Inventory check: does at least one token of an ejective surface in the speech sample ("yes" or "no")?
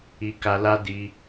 no